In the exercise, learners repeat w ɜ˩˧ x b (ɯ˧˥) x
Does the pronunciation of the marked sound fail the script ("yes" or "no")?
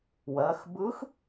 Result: no